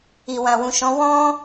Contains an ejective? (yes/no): no